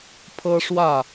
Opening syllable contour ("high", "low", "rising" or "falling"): high